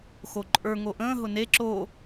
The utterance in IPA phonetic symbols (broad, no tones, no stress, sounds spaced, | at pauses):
x o ǃʼ ə˞ ŋ o ʔ ə̃ː ɦ ʊ n e ǁ o